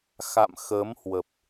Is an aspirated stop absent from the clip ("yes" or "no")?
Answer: yes